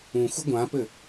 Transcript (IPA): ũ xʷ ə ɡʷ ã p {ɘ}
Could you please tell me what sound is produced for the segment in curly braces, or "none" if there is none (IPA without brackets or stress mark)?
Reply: ɘ